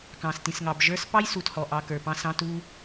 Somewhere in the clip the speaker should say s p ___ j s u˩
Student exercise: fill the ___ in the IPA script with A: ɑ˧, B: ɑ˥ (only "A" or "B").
B